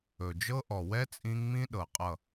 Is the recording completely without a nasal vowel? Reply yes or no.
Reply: no